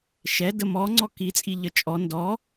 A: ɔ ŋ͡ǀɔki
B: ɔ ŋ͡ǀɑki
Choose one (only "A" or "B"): A